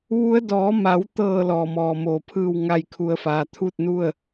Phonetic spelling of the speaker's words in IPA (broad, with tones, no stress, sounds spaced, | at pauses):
ʋ u˧˥ ə̯ d ɔː˩˧ m a˩˧ w t̪ ɤː˧˩ l ɔː˧˩ m ɔː˧˩ m oː˧˩ pʰ ɯː˥˨ w ŋ a˥˨ j kʰ u˧˥ ə̯ f aː˧ t̪ʰ u˥˨ t̚ n u˥˨ ə̯